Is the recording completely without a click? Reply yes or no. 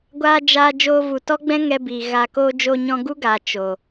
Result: yes